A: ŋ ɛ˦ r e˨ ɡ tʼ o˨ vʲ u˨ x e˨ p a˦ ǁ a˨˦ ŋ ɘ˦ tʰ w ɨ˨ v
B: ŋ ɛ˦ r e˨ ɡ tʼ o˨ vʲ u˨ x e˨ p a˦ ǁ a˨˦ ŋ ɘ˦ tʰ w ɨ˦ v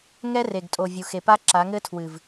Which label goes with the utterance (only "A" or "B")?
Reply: A